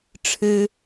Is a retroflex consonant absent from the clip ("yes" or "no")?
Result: no